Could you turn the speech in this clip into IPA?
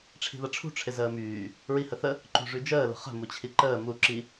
ʈ͡ʂʰ i̤ ð ɐ ʈ͡ʂʰ ṳ ʈ͡ʂʰ ɪ z əː m yː | ɹ i h ə θ ə | ǃ ṳ ʐ y d͡ʒ əː l ə̤ χ ə̤ m u t͡ɕʰ i ǃ əː m u ǁ i

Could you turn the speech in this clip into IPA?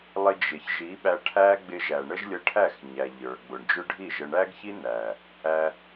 lˠ ɪ˧ d͡ʒ ɪ˨ ç ʒ i˨˦ ɓ æ˧ ʈʰ æ˦ ɡ͡b ɪ˧ ʒ æ˨ ɳ ə˦ ʒ lʲ ə˧ ʈʰ æ˦˨ x ɲ æ˨ ʎ ə˞˨ ɡ͡b ʊ˨ ɳ d͡ʒ ʊ˦ ɖʱ i˦˨ ʒ ə˧ ɳ æ˦ ɡ ç i˦ n æ˨ | æ˧

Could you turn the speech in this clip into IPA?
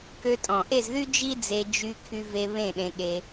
k ø˧ tʼ ɔ̃˨ ʔ e˦˨ z ð y˦ d͡ʒ i˦ d͡z e˧ d͡ʒ y˧ kʰ y˧ v e˧ β ẽ˦˨ ɗ ẽ˧ ɠ e˧

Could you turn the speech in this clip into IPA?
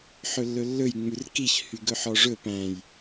ħ ɵ lː ɵ lː ɵ j ŋ͡m ʉ r k i ç h y ɡ ɵ ħ ɔ ʐ ɵ p æ̃ j

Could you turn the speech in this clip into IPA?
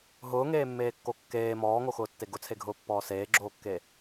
ɦ ʊː ŋ eː mː eː kː o kː eː m ɔː ŋ o x ʊː tː e ɡ ʊ t͡sʰ e ɡʱ ʊː pː ɔː s eː ɡ͡ǁ oː kː e

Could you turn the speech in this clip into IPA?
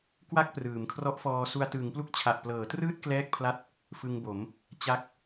k w a˥˩ k̚ p r ɯː˩˦ m kʰ r ɔ˦˥ ʔ f ɔː˧ s u˧ a̯ t ɯː˩˦ ŋ p l u˦˥ k̚ t͡ɕʰ a˨˩ ʔ p l ɤː˩˦ t r ɯː˥˩ t̚ k l ɛː˥˩ k̚ pʰ l a˥˩ t̚ | f ɯ˧ ŋ b o˩˦ m | t͡ɕ a˥˩ k̚

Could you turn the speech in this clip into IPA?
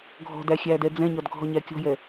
ɡʱ ɔ̤ d æ xʲ æ d ɛ d͡z ɛ̃ ɲ ɒ d ɡʱ ɔ ɲ æ kʲ ɔ̤ j ɛ

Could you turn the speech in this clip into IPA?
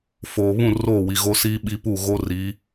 f oː˨ β ũ˦˨ r oː˦˨ w i˨ ɣ o˦ s iː˦ ɓ i˦ p u˦˨ ɣ o˦ r i˨˦

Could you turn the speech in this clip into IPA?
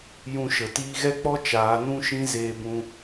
j ũ˧ ʃ ə˨ t iː˧ ɣ ɛ˦ k͡p ɔ˦ t͡ʃ aː˨˦ n ũ˦ ʃ ĩ˦ z eː˧ b ũ˧

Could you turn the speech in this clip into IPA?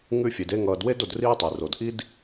ŋ ʉ˦ fʲ e˩ d e˦ ŋ ʌː˨ d w e˥ d o˨ d r iː˦ tˤ e˩ r o˩ d ʔ i˥ d

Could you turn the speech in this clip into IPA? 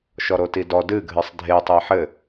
ʃ ɔ ɾ o t i d ɔ d ɨ ɡʱ ɨ sˤ dʱ e tˤ ɘ ɪ̯ ħ ɘ

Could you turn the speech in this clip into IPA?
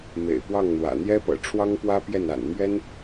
m ḛ˨˩ ɪ̯ p w ɑ˥˩ ŋ n̪ w ä̰˨˩ n̪ j ɛ˥ p ɤ̰˨˩ ʈ͡ʂʰ w ɑ˥ ŋ p w ä˥ p j ɛ˥˩ n a̰˨˩ n m ɥ ɛ˥ n

